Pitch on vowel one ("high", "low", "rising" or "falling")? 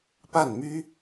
falling